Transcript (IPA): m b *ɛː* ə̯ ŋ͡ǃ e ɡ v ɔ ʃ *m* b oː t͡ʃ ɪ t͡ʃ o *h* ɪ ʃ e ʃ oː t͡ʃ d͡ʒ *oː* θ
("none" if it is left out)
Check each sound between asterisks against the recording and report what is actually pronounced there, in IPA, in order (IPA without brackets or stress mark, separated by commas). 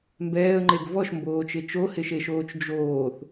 ɛː, m, h, oː